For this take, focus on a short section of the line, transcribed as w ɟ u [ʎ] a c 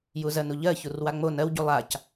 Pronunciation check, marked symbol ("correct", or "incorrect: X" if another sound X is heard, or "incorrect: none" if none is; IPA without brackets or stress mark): incorrect: lˠ